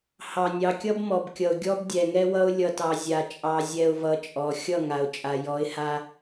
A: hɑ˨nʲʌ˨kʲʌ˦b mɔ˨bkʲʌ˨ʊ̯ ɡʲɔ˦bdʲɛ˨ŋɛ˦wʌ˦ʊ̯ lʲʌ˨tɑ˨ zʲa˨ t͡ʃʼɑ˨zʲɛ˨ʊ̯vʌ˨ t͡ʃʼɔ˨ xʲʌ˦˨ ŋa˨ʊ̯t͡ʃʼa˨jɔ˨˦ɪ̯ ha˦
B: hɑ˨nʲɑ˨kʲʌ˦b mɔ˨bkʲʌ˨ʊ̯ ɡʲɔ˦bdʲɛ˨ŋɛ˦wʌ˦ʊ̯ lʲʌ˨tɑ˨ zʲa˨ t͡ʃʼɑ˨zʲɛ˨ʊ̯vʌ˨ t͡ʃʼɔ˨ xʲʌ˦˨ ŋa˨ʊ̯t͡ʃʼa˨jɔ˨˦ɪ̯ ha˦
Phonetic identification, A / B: B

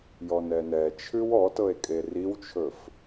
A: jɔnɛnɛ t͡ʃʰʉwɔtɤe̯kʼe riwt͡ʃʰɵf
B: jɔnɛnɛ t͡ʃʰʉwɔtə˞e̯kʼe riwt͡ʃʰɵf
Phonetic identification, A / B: A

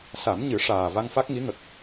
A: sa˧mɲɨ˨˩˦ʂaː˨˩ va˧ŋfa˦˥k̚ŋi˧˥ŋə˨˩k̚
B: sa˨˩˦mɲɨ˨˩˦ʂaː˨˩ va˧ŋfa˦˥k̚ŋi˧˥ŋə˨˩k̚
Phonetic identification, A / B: B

